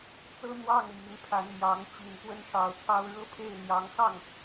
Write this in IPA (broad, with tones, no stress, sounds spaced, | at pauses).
t͡s ɤ˥ n̪ w ɑ˥˩ ŋ m i˧˥ n pʰ a˧˥ n m j ɑ˧˥ ŋ t͡ɕ i˨˩ n k w ə˥ n ʂ ɑ˨˩ ʊ̯ t̪ʰ ɑ˥ ʊ̯ ɻ ɤ˥ pʰ e˥˩ ɪ̯ n̪ j ɑ˧˥ ŋ x ɑ˥˩ ŋ